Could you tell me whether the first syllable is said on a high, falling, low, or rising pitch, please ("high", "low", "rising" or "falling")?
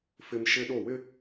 high